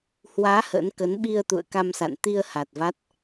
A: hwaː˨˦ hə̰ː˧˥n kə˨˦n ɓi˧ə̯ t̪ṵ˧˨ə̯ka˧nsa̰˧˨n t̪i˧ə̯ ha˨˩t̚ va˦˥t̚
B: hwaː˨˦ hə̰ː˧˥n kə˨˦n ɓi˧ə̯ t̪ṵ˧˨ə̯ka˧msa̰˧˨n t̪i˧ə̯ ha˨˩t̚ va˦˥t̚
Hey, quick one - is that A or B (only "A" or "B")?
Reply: B